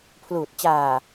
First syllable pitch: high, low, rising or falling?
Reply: low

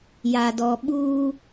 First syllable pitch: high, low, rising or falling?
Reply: low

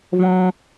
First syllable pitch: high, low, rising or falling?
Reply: high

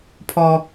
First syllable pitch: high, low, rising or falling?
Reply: high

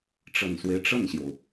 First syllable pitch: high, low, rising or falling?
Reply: low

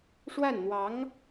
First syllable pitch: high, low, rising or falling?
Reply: falling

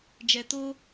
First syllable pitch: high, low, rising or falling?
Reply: low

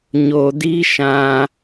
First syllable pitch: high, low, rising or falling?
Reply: low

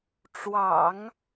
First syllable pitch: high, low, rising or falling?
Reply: low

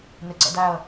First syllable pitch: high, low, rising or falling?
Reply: low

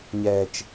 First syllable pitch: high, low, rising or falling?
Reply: low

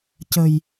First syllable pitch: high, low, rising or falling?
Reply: low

